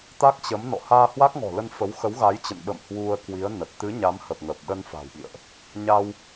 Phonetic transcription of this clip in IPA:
t̪ a˦˥ k̚ t͡ɕ ə˨˦ m n ɔ̰˧˨ h aː˧ h w a˦˥ k̚ ŋ ɔ̤˨˩ l ə˧ n f ə˨˦ w x ə˨˦ w ɣ a˨˦ j t͡ɕ ə̰˧˨ n ɓ ə̰˧˨ m h w u˧ ə̯ k w i˨˦ ə̯ n ə˨˩ t̚ t̪ ɨ˨˦ ɲ a˨˦ m h ə˨˩ p̚ ŋ ə˨˩ p̚ ɗ ə˧ n f a̤˨˩ w ɓ ḭ˧˨ ə̯ ʔ | ɲ aː˧ w

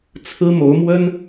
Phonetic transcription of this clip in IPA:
t͡sʰ ɹ̩˥ m o˧˥ ʊ̯ m w ə˥ n

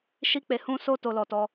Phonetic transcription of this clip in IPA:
ʃ i˦ k͡p e˧ h ũ˦ s o˦ t o˧ l ɔ˧ t ɔ˧

